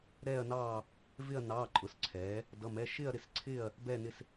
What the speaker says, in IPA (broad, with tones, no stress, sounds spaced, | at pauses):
ɾ ɛː˥˧ ɐ̯ n ɑː˥˧ | v ɪ˥˧ ɐ̯ n ɑː˧˥˧ ǃʼ ʊ˨˥ s ǀʰ ɛː˨˥ | d ʌ˧˥˧ m ɛ˧˥˧ ʃ ɪː˥˧ ɐ̯ ɾ ɪ˥˧ s ǀʰ ɪː˥˧ ɐ̯ | b ɛː˥˧ n ɪ˥˧ s